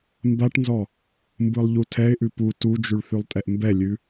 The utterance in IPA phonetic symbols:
mbaʈnzɔ | mbɯlˠʎutʰɛɪ̯ʔʉ pu tud͡ʒʉɭ θʉlˠtʼɛʔmbɛlʲʉ

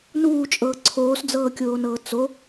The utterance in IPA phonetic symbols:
nuːt͡ʃʼɤː ǀʰoːsd͡zɤːkʲoːnɤː t͡so

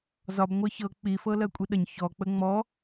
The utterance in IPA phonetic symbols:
zɒb ŋʷɜçɤ k͡pi fɤlɜkʷʼiɗəɲ çɔ k͡pəŋ͡mɔ

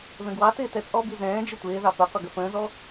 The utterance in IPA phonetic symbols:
ðə̃ɡwɑtɪː tɛt͡sʼɔbi zɛ̃ː d͡ʒɪtʷɪːðɑ pəqʷə ɡəfə̃ːzɔ

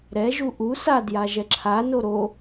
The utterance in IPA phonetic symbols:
ɾɛ ʒuʔu sa djaʒɛǁʰa noɾo

